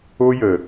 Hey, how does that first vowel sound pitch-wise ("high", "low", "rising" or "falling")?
high